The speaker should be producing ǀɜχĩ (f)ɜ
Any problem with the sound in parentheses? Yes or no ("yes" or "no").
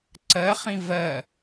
yes